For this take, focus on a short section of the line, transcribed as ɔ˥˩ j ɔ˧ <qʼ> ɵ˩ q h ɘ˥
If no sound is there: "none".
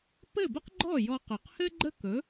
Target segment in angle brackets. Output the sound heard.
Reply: q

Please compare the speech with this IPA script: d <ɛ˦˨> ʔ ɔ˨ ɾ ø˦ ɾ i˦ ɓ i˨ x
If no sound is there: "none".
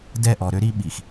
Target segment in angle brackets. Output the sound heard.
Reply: ɛ˦˨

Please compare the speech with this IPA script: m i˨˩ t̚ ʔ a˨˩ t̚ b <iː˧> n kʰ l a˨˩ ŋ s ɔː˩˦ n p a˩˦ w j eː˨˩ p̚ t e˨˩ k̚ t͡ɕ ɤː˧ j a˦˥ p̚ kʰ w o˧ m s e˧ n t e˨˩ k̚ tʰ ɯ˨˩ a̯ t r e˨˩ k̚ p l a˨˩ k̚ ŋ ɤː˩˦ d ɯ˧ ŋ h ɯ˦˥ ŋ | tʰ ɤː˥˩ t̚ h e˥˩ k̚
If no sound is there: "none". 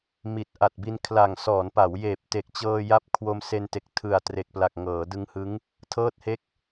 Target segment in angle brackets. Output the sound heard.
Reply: i˧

